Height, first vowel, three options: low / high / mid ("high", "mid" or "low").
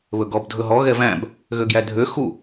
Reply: mid